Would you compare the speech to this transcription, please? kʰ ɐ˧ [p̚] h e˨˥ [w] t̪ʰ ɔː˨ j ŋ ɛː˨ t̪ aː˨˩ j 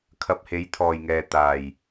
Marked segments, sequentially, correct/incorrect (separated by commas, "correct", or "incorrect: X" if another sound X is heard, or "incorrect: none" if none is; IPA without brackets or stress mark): correct, incorrect: j